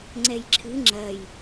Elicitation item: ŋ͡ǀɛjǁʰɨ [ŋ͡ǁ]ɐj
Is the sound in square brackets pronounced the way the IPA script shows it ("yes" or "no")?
yes